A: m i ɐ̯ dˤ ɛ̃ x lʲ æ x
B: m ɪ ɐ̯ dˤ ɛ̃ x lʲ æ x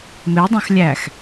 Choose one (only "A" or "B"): B